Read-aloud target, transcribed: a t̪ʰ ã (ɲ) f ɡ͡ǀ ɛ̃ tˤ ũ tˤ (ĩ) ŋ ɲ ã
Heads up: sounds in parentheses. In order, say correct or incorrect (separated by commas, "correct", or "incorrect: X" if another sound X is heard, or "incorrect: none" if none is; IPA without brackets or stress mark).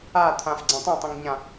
incorrect: none, incorrect: ẽ